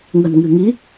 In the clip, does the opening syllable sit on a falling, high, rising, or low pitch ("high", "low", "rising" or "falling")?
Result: low